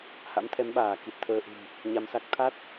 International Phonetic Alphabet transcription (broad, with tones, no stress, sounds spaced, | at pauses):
h a̰˧˥ m t̪ʰ ɛ˨˦ m ɓ aː˧˩ k i˨˩ t̚ t̪ʰ əː˧ ʔ ṳ˨˩ m | ɲ a˧ m s a˦˥ k̚ t̪ʰ a˦˥ t̚